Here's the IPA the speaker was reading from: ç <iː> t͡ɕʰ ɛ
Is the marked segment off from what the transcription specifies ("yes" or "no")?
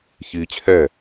no